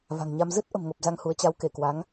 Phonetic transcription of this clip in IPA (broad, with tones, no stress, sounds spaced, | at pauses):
v a̤˨˩ ŋ ɲ a˧ m z ɨ˦˥ t̚ ʔ ə̤˨˩ m ŋ o˨˩ p̚ z a˧ ŋ h u˨˦ ə̯ t͡ɕ a˨˦ w k e˧˩ k w a˨˦ ŋ